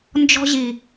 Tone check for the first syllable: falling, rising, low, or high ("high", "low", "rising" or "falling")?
high